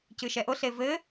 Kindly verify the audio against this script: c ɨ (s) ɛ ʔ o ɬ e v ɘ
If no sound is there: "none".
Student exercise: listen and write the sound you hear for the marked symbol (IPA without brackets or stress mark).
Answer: ʃ